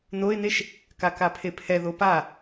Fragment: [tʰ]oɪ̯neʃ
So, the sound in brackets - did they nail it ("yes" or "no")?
no